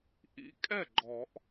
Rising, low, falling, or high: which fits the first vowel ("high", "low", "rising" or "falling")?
rising